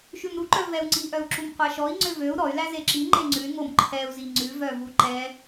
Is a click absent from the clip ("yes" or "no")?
no